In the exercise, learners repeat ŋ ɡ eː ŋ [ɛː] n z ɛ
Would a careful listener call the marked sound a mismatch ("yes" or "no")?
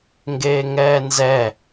no